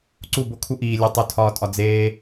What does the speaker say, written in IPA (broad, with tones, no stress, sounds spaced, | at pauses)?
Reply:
ǀ u˦˨ b o˦ kʰ u˦ ʔ iː˨ lʲ u˨ tˤ u˨ tʰ ɒː˨ tʼ ɒ˨ d͡z eː˦